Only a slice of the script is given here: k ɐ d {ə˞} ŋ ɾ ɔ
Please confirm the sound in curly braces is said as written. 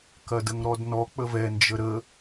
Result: no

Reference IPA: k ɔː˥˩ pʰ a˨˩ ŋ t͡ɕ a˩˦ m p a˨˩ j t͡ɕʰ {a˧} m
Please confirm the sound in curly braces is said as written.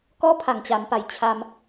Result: yes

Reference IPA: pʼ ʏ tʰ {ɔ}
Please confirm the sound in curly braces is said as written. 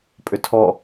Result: yes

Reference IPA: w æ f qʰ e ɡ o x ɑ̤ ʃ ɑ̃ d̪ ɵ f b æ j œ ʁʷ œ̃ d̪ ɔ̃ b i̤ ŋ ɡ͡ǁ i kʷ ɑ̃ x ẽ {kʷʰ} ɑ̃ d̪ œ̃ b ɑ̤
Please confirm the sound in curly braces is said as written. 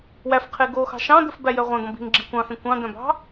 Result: no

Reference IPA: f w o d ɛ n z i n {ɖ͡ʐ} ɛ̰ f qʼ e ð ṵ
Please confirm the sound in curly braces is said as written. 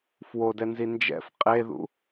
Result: no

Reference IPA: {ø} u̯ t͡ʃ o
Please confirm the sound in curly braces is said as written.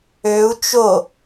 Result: yes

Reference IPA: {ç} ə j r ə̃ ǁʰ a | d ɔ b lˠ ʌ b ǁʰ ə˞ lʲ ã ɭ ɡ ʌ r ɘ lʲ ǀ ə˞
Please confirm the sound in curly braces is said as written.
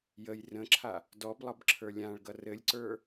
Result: no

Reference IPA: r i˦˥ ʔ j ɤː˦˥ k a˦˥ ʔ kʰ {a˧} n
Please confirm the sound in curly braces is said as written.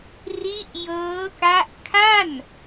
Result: no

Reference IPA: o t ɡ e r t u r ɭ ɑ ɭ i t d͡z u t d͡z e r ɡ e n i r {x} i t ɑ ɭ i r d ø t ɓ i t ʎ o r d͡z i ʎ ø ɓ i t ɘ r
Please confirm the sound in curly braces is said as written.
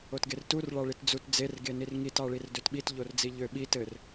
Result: no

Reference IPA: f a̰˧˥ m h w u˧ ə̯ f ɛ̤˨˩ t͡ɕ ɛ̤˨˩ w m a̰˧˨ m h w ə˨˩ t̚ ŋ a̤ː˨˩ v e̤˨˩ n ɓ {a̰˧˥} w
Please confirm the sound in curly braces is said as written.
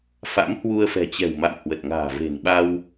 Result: no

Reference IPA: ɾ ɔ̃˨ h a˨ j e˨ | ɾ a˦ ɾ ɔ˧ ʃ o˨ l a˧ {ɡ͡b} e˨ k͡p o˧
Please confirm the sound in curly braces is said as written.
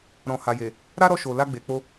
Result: yes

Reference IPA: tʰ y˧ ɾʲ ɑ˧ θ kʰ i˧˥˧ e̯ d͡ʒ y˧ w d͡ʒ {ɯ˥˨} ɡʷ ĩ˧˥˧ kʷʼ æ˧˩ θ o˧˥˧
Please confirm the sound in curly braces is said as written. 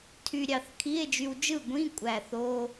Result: yes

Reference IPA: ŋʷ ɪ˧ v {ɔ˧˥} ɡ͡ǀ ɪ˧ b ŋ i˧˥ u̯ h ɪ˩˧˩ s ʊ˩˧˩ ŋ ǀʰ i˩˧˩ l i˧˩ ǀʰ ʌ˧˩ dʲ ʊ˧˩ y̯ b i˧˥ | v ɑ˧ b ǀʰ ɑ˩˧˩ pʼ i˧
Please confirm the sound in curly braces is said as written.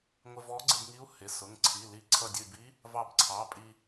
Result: yes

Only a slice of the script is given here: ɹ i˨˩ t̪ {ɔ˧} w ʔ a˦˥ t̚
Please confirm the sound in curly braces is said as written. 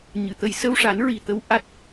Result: no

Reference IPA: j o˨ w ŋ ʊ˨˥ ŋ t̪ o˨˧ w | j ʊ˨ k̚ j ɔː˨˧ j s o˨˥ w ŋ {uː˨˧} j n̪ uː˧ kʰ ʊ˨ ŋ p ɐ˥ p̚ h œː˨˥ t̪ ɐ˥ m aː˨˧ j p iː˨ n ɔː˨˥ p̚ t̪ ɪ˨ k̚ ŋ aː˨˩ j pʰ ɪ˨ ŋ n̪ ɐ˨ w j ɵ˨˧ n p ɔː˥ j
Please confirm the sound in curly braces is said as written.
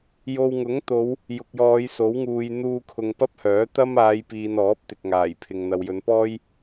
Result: no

